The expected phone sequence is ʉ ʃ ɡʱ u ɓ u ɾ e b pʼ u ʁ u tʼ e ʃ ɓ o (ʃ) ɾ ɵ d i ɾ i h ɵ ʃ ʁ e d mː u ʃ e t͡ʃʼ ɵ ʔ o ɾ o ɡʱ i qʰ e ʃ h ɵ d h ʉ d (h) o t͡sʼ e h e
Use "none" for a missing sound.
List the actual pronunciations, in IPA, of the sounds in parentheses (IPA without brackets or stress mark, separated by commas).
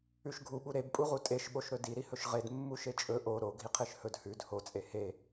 ʃ, h